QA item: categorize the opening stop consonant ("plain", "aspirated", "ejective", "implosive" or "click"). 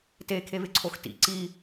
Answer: plain